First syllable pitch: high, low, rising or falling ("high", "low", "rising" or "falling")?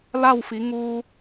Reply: falling